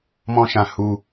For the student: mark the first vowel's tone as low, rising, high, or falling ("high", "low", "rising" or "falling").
high